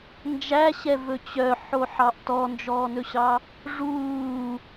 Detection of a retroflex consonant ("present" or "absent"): present